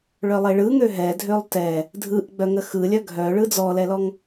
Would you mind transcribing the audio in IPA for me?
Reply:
ɭ œ lˠ e ɭ ɯ ŋ ø ɦ ɛ dʱ ø lˠ t ɛ | dʱ ɯ ʔ ɡ͡b œ ŋ ə x ɯ lʲ œ ɡʱ œ ɭ ɯ d͡z ɔ l ɛ l ɔ ŋ

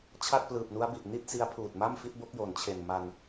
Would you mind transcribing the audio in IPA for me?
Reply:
t͡ɕʰ a˥˩ t̚ p l ɯː˨˩ p̚ n u˦˥ a̯ b i˨˩ ʔ n i˥˩ t̚ s i˦˥ a̯ pʰ uː˨˩ t̚ m a˥˩ m f i˦˥ t̚ b o˦˥ k̚ j o˩˦ n t͡ɕʰ e˨˩ n m a˧ n

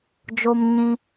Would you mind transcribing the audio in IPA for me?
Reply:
d͡ʒ o˦ m ɲ ĩ˦

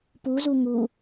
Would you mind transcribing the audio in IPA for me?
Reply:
p u z u ŋ u

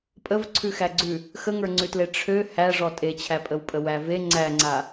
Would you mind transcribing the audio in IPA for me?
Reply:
pʼ ə v ǀʰ ʉ x æ ɡ͡ǀ ʉ | x ə ŋ ə˞ ŋ͡ǀ ʉ t l e ʈ͡ʂʰ ø h æ ʐ ɔ tʼ e t͡ɕʰ æ pʼ ə w pʼ ə w æ v e ŋ͡ǀ æ ŋ͡ǀ a

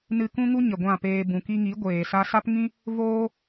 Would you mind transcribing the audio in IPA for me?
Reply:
n ɨ˧ k ũ˦ ŋ u˦ ɲ ə˨ ɡʷ ã˦˨ p eː˧ b ũ˨ k i˧ ŋ i˨˦ ɡʷ eː˨ s a˦ s a˦ p ŋ ĩ˦ | v oː˦

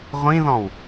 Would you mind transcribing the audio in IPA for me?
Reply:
ʁʷ ĩ ð ɔ̃ w

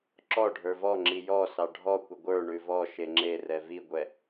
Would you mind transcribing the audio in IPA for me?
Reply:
ǁ ɔ ɖʱ ə˞ v ɔ ŋ͡ǁ i j ɔ s ɑ ɖʱ ɔ kʷ ə ɡʷ ə˞ ɳ ʉ v ɔ ʃ e ŋ͡ǁ e r ɛ v i ɡʷ ɛ

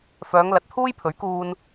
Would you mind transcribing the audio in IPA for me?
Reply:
f œː˨˧ ŋ l ɐ˨ t̚ t̪ʰ uː˥ j pʰ ɵ˨˥ ɥ k uː˧ n

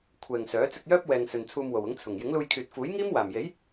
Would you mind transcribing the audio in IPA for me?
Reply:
kʷʰ ɛː˨ ŋ s œː˨˥ t͡s ɪ˧ k̚ j œː˥ p̚ w ɛː˨ ŋ s ɵ˨ n t͡sʰ uː˧ m w o˨˩ w ʊ˨˥ ŋ t͡sʰ ʊ˨˩ ŋ j ɪ˨˥ ŋ l uː˧ j kʰ yː˨ t̚ f uː˨˥ j ŋ iː˥ m w aː˨˩ m j e˨˥ j

